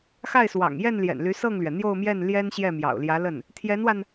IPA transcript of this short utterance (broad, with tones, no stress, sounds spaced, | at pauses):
x a˥˩ ɪ̯ s w ɑ̰˨˩ ŋ j ɛ˥˩ n l j ɛ̰˨˩ n l y˧˥ s ɤ˥˩ ŋ l ɥ ɛ˩ n̪ j o˥˧ ʊ̯ m j ɛ˥˩ n l j ɛ˥ n ɕ j ɛ˥˩ m j ɑ̰˨˩ ʊ̯ l j ä˧˥ l ə˥˩ n | t̪ʰ j ɛ˧˥ n w a˧ n